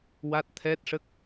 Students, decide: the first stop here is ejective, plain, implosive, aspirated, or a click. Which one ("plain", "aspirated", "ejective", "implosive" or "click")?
plain